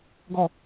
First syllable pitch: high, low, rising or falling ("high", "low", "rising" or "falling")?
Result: falling